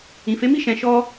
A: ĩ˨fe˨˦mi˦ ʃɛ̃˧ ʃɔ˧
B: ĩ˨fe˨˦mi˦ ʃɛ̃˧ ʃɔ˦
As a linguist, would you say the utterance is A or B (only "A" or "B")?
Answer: B